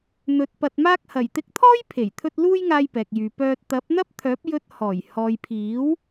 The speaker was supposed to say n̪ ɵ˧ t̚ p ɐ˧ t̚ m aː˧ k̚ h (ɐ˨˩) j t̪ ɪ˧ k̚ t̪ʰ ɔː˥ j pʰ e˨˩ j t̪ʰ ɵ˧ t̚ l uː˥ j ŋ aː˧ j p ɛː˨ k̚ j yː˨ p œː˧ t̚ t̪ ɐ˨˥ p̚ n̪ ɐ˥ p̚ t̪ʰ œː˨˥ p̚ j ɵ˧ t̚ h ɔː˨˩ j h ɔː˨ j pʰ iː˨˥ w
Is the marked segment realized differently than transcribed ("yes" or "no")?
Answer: no